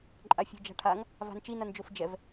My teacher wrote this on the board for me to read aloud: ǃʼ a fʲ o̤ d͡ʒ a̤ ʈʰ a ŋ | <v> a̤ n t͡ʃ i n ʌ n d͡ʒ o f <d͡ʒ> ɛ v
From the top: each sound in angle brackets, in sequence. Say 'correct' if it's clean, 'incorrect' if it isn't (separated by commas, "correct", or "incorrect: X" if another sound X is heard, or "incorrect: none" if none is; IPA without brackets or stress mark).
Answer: correct, correct